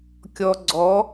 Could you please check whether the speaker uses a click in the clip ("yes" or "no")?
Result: yes